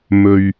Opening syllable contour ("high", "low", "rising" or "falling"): low